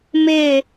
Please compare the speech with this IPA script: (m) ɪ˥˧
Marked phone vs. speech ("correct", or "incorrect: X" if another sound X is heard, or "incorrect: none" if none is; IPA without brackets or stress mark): correct